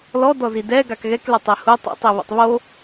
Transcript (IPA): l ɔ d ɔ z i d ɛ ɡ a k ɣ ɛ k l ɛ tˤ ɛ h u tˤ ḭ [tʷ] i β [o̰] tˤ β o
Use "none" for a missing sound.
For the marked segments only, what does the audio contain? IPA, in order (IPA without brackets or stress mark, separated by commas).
tˤ, o̰